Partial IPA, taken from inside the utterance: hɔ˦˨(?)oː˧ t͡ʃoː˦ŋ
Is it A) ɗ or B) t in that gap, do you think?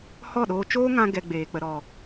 A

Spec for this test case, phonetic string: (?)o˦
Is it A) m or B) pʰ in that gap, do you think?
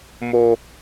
A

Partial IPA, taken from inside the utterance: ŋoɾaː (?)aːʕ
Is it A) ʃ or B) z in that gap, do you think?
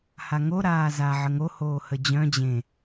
B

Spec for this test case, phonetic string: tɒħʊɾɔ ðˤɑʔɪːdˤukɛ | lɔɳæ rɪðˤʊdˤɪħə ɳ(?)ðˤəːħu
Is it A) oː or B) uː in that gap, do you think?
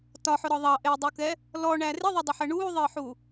B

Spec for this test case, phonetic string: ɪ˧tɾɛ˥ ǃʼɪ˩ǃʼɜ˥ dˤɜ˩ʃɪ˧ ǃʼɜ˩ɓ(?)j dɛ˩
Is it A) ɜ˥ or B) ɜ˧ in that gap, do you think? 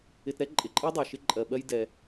B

